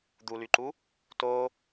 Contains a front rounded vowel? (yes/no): yes